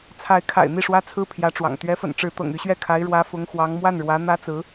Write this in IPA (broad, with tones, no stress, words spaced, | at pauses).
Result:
t͡sʰa˧˥ɪ̯kʰa̰˨˩ɪ̯ n̪i˥˩ʂwä˥t͡sʰɹ̩˥ pʰjä˧˥ʈ͡ʂwɑ̰˨˩ŋ t̪ɥɛ˧˥fə̰˨˩n ʈ͡ʂɻ̩˧˥t̪ɤ̰˨˩ŋy˧˥ɕɥɛ˥˩ kʰa˧˥ɪ̯ɻwä˧˥ fʊ˧˥ŋxwɑ˧˥ŋ mwa˥˩nɻwä˧˥ n̪ä˥t͡sɹ̩˧˥